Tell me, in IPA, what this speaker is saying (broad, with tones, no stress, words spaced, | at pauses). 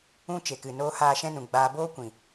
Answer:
ũ˦ t͡ʃe˨kɨ˨noː˦ haː˦˨ʃɛ̃˦nũ˨ ɡ͡baː˧ boː˦kʷĩ˨